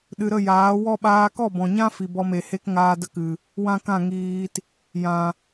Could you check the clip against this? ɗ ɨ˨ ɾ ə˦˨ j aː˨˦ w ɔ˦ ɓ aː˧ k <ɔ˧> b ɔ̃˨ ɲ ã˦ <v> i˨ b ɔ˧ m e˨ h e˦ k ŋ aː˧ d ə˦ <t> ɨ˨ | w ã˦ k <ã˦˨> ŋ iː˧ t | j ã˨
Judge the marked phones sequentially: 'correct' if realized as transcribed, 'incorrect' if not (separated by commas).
incorrect, incorrect, incorrect, correct